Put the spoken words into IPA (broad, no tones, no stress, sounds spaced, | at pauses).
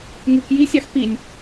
ŋ ɯ k j i sʲ ɑ x p i nʲ